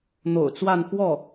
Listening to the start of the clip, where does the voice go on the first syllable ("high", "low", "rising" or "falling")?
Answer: low